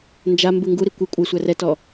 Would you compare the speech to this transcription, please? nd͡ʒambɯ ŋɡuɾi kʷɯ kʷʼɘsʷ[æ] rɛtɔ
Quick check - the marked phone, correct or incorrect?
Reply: correct